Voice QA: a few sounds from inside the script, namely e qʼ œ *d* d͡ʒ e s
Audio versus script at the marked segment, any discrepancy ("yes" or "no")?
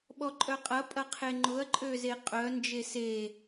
yes